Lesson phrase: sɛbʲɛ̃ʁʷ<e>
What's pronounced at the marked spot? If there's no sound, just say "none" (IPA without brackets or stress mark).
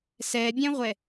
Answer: ɛ